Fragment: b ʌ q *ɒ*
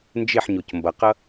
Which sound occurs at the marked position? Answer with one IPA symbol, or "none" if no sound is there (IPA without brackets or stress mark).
ʌ